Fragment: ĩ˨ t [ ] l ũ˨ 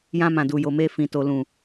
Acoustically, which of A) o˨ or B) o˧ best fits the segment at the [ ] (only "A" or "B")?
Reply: A